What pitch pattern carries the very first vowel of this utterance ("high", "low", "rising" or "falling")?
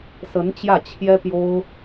rising